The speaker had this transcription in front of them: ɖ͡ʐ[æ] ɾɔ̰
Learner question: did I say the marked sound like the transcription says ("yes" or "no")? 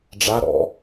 no